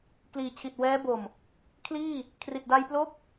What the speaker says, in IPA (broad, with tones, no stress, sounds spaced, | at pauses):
k l iː˨˩ t͡ɕʰ i˨˩ t̚ w ɛː˦˥ b o˨˩ m | kʰ l iː˥˩ | kʰ r i˨˩ t̚ d a˧ j p l o˦˥ k̚